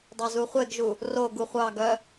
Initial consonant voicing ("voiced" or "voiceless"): voiced